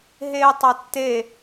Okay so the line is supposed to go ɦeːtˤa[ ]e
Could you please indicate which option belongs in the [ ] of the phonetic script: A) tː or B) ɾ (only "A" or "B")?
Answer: A